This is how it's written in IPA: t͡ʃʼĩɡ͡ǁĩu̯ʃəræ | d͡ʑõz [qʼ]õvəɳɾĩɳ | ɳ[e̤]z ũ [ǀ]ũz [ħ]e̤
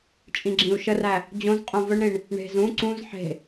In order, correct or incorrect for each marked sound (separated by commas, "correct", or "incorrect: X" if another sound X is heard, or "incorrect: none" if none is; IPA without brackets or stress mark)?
correct, correct, correct, correct